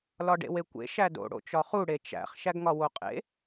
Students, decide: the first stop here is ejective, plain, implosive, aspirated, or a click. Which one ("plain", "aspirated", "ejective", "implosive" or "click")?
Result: plain